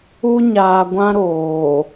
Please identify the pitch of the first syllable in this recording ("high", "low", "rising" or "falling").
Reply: high